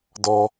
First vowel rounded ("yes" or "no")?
yes